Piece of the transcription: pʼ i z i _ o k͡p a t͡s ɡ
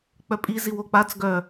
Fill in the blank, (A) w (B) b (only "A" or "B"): A